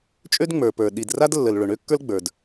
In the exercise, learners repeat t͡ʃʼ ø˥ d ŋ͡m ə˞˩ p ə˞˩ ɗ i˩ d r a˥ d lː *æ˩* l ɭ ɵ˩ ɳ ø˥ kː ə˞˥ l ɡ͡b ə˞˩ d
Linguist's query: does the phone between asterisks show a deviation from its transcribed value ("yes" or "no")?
yes